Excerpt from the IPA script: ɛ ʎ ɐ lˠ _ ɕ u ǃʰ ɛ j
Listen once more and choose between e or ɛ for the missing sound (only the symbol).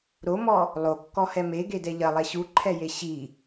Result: ɛ